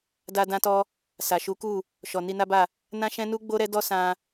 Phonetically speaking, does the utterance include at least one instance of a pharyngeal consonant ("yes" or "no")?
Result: no